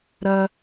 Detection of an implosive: absent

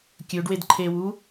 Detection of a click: present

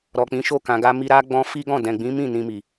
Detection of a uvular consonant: absent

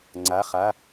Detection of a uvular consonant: present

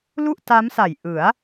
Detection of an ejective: absent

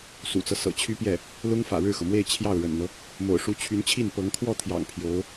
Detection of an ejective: absent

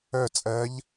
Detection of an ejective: present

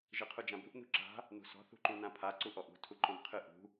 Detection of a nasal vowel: present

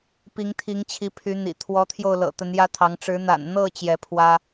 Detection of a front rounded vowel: present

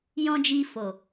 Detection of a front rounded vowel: absent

